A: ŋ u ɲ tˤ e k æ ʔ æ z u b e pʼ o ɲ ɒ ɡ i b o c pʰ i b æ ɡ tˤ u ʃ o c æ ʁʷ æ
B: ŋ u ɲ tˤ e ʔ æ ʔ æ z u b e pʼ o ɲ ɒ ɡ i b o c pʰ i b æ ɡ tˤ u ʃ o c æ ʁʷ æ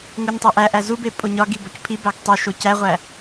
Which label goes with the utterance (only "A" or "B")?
B